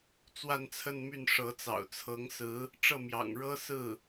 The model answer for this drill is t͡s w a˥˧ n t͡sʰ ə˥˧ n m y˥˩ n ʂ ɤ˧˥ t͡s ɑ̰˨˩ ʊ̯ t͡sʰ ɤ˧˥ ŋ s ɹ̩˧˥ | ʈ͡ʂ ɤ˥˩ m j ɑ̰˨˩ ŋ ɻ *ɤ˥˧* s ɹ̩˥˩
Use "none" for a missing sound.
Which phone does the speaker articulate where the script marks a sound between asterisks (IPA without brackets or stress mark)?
ɤ˥